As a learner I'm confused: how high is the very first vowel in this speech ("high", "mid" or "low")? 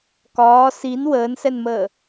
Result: low